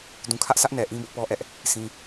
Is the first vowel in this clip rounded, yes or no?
yes